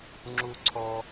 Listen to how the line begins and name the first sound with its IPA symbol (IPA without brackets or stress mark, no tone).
ŋ͡ǁ